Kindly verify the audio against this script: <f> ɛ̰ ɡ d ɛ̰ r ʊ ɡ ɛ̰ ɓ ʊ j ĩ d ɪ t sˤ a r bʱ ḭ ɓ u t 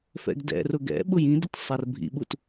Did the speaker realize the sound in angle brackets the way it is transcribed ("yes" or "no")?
yes